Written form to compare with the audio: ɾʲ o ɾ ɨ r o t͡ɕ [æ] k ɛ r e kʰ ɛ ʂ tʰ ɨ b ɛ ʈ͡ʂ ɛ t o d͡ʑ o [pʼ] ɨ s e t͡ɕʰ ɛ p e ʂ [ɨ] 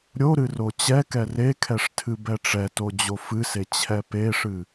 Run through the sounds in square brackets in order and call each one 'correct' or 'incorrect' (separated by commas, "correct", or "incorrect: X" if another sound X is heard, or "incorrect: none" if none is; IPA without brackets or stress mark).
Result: incorrect: ɛ, incorrect: f, correct